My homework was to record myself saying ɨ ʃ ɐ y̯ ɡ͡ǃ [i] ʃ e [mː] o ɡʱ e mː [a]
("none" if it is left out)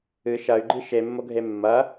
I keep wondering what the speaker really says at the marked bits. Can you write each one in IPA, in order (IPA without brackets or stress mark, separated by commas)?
i, mː, ɐ